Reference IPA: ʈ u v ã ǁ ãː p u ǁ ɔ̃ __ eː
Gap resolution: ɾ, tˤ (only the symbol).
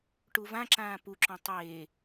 tˤ